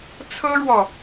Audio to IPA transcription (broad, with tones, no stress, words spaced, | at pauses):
t͡sʰɤ˥ɻwɔ˨